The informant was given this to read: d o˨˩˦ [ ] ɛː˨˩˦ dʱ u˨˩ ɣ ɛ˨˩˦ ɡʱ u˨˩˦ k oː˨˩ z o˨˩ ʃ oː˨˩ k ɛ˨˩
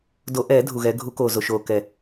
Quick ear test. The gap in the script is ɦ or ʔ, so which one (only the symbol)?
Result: ʔ